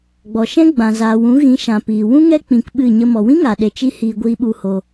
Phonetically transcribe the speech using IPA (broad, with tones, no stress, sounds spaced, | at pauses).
ɡ͡b ɔ˨ ʃ ɛ̃˦ ɡ͡b ã˨ z aː˨ w ũ˨˦ ɣ ĩ˨˦ ʃ ã˨ p iː˨ w ũ˦ ŋ ɛ˦ k͡p ĩ˧ k ɓ ɨ˦˨ ɲ ə˦ m ɔ˨ w ĩ˦ ŋ a˨ ɗ e˨ t͡ʃ i˦ h iː˧ ɡʷ iː˧ ɓ u˧ h o˧